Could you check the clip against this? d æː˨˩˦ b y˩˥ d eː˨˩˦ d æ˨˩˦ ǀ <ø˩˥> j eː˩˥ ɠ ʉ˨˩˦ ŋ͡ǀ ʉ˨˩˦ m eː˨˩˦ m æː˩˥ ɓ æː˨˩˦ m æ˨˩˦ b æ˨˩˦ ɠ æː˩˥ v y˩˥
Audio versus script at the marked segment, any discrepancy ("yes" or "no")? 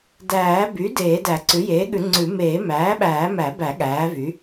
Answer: yes